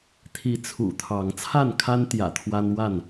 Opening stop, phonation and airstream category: aspirated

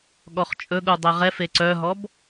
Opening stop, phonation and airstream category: implosive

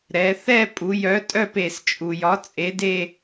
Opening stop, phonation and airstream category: ejective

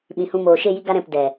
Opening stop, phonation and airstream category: implosive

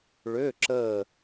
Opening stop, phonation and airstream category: click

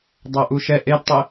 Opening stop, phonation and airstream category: plain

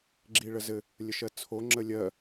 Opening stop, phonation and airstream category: click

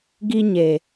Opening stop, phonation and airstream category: plain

